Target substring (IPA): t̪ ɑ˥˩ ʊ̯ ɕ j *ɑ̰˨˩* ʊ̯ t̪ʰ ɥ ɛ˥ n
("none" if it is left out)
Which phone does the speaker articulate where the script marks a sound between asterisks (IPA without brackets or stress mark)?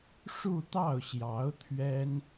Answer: ɑ˧˥